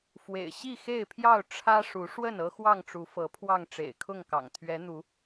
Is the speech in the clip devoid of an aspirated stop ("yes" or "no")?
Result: no